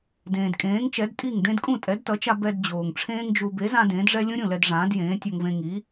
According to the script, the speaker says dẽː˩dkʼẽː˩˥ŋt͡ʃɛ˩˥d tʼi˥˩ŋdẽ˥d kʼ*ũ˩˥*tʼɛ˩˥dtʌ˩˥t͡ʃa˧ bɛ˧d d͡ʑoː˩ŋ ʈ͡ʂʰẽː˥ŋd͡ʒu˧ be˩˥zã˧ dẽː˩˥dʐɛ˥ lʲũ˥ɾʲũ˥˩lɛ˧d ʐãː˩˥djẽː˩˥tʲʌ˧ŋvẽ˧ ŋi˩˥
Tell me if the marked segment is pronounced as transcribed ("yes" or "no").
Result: no